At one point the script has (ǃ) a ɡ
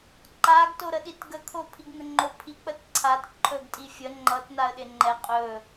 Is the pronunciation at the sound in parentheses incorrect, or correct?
correct